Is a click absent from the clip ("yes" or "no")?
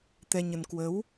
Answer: yes